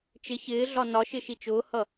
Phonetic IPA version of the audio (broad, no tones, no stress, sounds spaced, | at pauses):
t͡ʃ ɪ ç ɪː ɮ ɒ n ɒ ʃ ɪ ʃ i t͡ʃ ʊː h ʌ